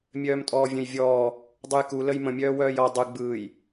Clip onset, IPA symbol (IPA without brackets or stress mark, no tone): mʲ